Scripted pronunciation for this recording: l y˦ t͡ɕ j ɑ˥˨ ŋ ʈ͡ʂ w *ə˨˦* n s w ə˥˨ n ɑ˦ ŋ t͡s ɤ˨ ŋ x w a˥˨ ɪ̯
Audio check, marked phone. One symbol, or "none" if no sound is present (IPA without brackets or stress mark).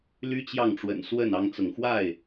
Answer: ə̰˨˩